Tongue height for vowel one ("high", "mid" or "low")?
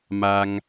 low